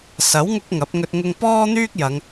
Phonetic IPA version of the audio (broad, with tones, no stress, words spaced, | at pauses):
sɐ˨˥wŋʊ˧k̚ ŋɐ˨˥p̚ŋɵ˧t̚ ŋʊ˧ŋpɔː˥n̪yː˥k̚jɐ˨˧ŋ